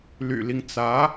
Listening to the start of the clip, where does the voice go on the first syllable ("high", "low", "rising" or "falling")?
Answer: low